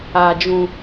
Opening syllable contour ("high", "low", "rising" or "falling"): low